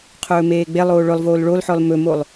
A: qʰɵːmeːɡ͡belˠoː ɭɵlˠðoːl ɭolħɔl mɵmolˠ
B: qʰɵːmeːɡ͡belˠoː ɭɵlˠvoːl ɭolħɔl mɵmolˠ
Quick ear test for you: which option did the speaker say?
B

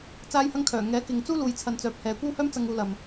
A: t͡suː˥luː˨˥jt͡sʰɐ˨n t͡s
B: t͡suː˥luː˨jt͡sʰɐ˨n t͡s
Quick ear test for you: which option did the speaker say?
B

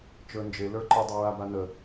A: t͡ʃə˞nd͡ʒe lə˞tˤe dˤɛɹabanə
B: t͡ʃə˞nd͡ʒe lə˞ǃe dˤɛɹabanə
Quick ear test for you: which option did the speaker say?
B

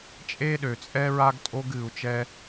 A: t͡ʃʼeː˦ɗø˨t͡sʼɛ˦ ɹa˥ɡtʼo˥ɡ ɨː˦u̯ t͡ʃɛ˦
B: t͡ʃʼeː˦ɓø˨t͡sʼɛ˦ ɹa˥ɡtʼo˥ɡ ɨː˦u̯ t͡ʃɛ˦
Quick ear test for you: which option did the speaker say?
A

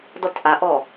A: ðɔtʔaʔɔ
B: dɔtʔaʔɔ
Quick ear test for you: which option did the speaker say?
B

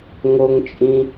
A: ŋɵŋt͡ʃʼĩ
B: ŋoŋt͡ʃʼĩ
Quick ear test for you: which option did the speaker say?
B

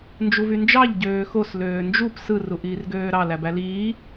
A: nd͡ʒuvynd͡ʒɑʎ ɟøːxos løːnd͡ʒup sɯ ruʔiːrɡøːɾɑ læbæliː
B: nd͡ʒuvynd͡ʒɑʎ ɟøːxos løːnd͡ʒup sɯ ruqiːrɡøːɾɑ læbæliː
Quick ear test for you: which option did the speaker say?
A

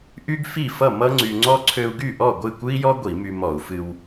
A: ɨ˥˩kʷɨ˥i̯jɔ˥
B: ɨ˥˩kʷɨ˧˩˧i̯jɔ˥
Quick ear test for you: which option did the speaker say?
A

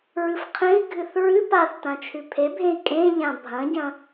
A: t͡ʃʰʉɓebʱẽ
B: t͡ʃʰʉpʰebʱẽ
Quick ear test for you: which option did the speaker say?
B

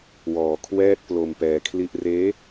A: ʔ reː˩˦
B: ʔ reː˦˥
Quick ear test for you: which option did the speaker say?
B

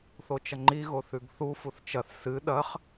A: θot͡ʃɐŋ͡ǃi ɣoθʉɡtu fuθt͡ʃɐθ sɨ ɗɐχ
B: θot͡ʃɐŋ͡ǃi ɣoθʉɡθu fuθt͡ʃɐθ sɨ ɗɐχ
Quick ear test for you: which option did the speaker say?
B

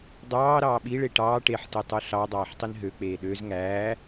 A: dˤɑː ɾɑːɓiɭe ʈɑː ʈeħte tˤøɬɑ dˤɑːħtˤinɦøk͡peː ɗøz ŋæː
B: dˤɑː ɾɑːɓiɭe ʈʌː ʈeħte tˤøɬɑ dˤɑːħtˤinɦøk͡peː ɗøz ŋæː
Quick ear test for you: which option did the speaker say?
A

